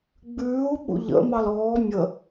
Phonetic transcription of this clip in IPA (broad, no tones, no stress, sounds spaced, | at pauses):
ɡ͡b ʉː u̯ ɓ ṵ ʎ ə̰ m ɑ l ɔː mʲ ə